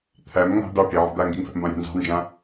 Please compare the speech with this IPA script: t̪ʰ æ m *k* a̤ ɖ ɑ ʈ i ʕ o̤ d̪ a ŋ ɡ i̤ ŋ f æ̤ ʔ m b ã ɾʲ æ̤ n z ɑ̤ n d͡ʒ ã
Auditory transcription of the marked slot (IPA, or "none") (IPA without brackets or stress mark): ŋ